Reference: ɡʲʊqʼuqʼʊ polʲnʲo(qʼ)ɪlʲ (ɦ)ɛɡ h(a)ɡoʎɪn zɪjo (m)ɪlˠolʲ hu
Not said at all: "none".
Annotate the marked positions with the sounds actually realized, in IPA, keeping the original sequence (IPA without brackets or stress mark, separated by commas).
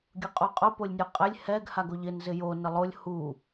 qʼ, h, a, n